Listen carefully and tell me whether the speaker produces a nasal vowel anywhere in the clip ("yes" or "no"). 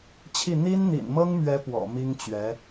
no